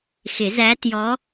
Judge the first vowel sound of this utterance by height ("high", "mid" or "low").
high